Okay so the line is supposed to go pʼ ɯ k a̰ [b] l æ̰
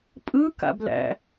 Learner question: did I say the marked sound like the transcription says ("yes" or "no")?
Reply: yes